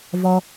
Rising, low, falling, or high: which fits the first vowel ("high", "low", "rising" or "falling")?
low